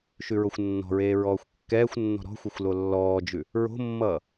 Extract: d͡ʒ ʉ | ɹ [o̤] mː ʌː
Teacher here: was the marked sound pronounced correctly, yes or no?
yes